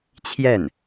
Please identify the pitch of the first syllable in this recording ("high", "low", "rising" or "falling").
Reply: falling